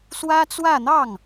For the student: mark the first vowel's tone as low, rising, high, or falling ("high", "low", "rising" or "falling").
high